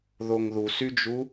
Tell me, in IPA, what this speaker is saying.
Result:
ðoŋðusyd͡ʒu

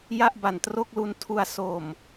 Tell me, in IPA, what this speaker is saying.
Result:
ja˥˩ʔba˨˩ntro˥˩k̚lu˧n tʰu˧a̯ so˨˩m

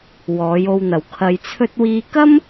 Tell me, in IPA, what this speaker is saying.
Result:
wɔː˨˧jo˧wn̪ɐ˨w kʰɐ˧jt͡sʰɵ˥t̚ wiː˧kɐ˥m

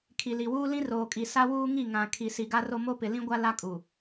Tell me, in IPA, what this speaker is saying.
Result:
kʰi˨li˨wuː˦ lĩ˦roː˨kʼi˨ sa˦wuː˦ ŋi˦˨ ŋã˨ kʰi˨ si˨ɡa˦ro˦ mo˦pɪ˨lĩ˦ɡʷa˦ la˦kʼu˨

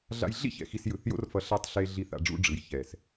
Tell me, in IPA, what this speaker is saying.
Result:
ɮa̰˧jɮḭ˦çɛ̰˨ xi˧sjɯ˨θjo̰˦rfʌ˧ ɬa˧tˤɬe˧ ɮi˧θ a̰˧ ɖ͡ʐṵ˧ ɖ͡ʐɯ˨j çɛ˨s

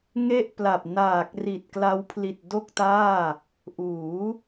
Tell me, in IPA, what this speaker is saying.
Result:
ŋe˥˩ʔpla˨˩p̚ naː˨˩k̚ ri˨˩t̚kla˦˥wpʰli˨˩t̚ do˥˩k̚taː˥˩ | ʔuː˩˦

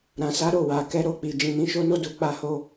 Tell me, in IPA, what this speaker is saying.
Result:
ɾã˨sa˨˦ɾo˦˨ wa˨ kɛ˧ɾo˧k͡pi˨ d͡ʒĩ˨nĩ˨˦ʃo˦no˦ du˧ k͡pa˧ho˧

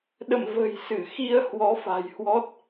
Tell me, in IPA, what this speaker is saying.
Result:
ɗə̰˧˨m və̤˨˩jsɨ˧˩ xi˧ə̯ hwɔ˨˦fa̤˨˩jhwɔ˦˥t̚

